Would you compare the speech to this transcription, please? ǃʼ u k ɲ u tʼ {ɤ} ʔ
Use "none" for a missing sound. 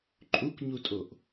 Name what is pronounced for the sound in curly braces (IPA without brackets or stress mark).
o